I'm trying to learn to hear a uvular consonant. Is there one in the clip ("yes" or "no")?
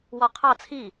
yes